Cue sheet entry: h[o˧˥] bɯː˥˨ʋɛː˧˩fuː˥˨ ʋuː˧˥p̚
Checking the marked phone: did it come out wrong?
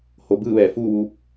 yes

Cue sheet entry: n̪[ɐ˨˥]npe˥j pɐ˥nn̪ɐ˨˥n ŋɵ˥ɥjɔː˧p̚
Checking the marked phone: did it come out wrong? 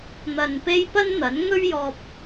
yes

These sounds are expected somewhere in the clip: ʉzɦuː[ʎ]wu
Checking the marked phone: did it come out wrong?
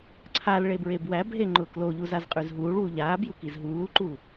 yes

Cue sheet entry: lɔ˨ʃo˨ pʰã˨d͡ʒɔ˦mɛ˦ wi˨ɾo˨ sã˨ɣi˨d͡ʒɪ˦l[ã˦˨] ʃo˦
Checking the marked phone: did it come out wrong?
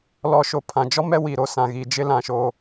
no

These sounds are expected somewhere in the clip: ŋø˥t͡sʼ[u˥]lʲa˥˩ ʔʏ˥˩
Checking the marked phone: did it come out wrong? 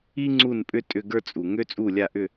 yes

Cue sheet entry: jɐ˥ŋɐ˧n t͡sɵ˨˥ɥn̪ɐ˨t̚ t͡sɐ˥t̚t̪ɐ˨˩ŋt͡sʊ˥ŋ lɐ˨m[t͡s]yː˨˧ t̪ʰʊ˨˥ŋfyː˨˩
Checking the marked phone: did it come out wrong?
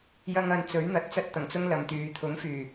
yes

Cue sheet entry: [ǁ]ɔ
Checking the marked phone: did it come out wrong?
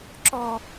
no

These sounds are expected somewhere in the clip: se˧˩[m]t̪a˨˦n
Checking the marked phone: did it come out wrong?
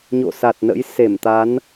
no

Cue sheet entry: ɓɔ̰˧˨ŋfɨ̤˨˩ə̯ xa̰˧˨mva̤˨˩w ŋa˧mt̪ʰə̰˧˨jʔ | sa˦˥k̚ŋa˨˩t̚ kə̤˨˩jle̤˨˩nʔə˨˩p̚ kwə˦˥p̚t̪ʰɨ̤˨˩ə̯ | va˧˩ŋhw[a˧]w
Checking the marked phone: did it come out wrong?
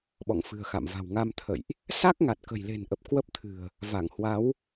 yes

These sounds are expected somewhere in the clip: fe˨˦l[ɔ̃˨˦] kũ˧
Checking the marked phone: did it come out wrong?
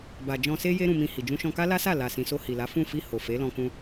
yes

